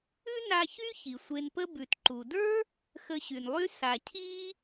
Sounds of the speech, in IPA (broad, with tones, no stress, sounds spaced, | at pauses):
ʉ˥ n a˧ ç y˥ ç i˩ sʷ e˧ n p ə˥ b ʉ˩ t ǃ u˩ d ə˞˥ | x ə˧ ɕ y˩ n lˠ y˥ s a˩ cʰ i˥